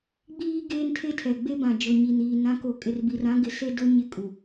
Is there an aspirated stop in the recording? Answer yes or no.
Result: yes